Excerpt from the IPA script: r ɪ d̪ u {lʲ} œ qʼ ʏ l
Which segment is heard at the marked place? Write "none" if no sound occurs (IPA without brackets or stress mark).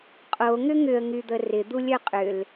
lʲ